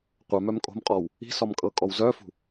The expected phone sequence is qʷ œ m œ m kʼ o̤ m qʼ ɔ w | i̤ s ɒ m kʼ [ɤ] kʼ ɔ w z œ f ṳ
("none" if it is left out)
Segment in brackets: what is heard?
ɤ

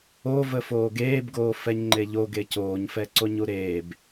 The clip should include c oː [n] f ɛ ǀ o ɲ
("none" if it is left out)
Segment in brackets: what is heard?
ɲ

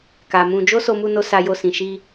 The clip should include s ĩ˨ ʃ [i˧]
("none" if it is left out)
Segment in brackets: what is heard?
i˧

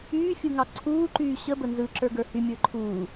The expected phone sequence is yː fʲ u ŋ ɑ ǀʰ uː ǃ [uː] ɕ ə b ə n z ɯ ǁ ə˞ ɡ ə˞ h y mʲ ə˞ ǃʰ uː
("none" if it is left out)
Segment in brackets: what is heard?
yː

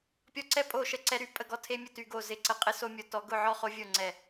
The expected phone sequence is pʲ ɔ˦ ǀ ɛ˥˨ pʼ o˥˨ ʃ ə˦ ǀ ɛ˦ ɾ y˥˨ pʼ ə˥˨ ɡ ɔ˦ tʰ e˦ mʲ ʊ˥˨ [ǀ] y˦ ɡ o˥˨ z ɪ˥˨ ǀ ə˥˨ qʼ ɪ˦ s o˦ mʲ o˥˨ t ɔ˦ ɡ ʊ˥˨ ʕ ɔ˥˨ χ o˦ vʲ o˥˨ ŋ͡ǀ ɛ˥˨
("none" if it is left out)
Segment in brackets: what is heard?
t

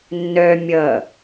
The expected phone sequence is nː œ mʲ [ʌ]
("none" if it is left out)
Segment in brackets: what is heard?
ʌ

